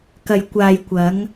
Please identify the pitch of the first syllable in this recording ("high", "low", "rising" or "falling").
low